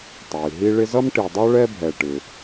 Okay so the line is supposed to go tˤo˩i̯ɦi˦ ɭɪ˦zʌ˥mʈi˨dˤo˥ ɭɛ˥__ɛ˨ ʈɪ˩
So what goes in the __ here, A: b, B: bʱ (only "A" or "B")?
B